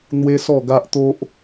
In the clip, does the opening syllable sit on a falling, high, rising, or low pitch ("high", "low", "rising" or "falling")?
high